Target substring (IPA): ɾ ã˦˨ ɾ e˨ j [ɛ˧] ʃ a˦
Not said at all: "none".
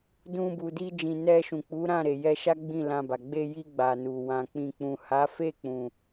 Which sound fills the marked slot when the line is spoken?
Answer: ɛ˧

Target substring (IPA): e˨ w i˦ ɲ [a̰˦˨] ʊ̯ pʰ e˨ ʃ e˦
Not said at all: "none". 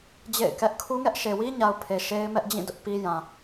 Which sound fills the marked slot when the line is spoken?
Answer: a˨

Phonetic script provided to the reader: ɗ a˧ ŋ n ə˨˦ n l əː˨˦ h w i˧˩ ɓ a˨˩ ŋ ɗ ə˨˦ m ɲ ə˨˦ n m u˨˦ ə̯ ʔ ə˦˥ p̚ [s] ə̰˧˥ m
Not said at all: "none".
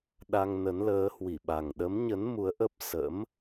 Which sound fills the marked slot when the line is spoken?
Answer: s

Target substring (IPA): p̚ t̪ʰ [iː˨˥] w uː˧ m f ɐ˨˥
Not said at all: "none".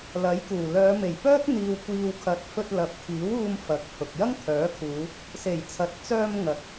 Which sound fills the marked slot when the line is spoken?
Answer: iː˨˥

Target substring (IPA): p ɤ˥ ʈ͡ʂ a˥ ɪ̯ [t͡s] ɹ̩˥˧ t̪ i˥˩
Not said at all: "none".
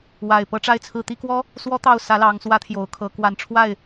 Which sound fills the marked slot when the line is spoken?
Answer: t͡sʰ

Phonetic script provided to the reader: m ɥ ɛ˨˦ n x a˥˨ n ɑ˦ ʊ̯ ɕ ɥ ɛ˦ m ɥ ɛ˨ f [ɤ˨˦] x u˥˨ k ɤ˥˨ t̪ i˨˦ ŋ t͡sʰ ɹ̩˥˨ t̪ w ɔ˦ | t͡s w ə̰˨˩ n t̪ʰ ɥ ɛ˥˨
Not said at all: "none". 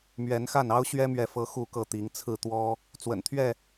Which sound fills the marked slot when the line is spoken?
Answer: ɤ˨˦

